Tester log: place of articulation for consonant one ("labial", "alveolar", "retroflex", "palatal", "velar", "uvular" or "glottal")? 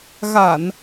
velar